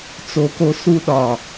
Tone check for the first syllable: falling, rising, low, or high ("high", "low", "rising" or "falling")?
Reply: low